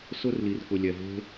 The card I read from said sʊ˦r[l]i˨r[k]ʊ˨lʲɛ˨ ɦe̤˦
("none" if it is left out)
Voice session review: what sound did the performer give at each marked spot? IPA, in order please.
l, k

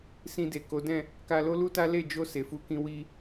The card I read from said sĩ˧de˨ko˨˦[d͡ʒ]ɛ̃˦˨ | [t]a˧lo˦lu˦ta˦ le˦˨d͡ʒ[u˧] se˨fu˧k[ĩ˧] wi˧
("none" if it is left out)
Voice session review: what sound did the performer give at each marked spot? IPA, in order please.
d, k, o˧, ĩ˧

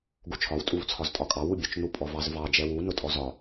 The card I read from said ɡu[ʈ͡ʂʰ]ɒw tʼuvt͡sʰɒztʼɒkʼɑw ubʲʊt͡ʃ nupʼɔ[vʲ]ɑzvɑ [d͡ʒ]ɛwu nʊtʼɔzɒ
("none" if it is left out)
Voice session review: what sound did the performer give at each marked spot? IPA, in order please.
t͡ʃʰ, v, d͡ʒ

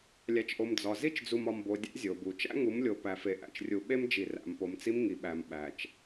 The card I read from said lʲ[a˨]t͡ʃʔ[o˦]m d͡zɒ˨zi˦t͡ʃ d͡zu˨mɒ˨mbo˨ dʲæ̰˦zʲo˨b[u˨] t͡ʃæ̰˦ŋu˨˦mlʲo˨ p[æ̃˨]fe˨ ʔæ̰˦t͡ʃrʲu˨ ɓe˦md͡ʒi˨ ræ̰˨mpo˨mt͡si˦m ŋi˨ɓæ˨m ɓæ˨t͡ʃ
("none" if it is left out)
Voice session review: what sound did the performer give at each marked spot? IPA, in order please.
æ˨, o˨, u˨, æ˨

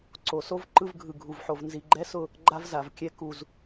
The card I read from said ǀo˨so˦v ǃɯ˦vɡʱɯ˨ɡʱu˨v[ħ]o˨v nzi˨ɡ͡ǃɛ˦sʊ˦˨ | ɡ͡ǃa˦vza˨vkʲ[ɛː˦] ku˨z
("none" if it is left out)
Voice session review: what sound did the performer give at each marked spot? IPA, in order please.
ħ, ɛ˦

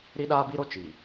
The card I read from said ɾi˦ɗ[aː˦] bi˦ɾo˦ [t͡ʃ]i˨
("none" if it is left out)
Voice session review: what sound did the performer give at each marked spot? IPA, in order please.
aː˦, t͡ʃ

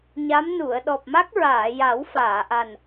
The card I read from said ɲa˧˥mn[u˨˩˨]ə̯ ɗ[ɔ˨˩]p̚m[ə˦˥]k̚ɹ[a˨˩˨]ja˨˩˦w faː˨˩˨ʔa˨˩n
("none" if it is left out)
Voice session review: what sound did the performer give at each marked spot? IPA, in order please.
u˨˩˨, ɔ˨˩, a˦˥, aː˨˩˨

